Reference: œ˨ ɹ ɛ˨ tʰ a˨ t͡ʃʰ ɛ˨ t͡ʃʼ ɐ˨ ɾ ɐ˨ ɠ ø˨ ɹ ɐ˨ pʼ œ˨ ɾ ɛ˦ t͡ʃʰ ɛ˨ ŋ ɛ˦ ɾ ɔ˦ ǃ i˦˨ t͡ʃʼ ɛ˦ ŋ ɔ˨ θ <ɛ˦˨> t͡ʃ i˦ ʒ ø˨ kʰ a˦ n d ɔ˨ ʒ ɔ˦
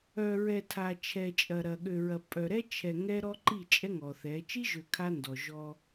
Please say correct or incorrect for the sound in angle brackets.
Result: incorrect